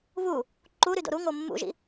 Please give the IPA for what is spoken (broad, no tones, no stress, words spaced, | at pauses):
βu | ǃuɾy do̰ɾuŋo mːṵʒḭ